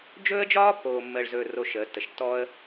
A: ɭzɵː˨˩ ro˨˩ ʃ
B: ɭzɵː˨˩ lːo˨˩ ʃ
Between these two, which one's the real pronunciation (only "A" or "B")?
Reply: A